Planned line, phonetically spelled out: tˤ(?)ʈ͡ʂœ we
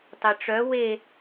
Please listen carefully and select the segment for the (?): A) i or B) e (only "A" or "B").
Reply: B